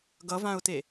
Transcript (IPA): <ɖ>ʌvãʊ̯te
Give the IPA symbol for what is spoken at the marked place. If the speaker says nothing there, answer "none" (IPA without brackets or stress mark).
ɡ